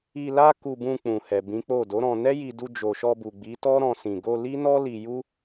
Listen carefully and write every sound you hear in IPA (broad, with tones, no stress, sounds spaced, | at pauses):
i˧ l a˦ k u˧ b ũ˧ k͡p ũ˨ h ɛ˨ b ĩ˨˦ k͡p o˦˨ d o˨˦ ɾ ɔ̃˧ n ɛ˦ j i˧ d u˧ d͡ʒ o˨ ʃ ɔ˧ b u˨ ɡ͡b i˨˦ t ɔ˦ ɾ ɔ̃˧ s ĩ˨ ɡ o˧ l i˦ n ɔ˦ l i˧ j u˦